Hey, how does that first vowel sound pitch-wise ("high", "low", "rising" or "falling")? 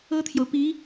high